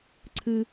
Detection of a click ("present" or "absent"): present